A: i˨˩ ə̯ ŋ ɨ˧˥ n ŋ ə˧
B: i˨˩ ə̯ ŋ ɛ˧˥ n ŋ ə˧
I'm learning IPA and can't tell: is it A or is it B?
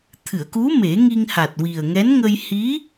B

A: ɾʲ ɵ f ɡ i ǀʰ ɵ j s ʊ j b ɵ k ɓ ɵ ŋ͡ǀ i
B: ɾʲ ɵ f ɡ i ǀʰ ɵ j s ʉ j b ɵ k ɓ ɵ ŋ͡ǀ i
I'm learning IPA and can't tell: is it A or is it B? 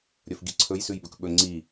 B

